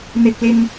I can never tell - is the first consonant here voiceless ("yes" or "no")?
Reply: no